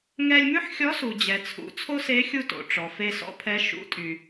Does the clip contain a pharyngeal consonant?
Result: yes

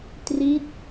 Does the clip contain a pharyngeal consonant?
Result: no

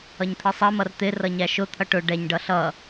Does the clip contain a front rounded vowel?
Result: no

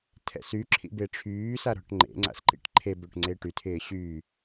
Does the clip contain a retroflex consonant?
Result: yes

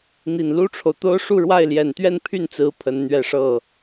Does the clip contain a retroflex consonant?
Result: yes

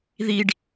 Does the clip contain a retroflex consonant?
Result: yes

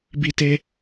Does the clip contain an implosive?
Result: no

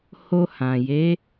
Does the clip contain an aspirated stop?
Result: no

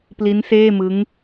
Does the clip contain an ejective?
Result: no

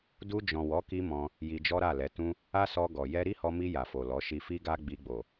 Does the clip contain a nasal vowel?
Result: yes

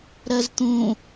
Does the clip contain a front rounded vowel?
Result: no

